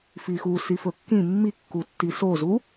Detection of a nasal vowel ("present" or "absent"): present